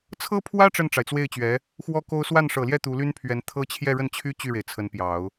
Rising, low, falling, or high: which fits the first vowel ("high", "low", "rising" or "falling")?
high